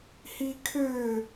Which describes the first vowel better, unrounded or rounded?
unrounded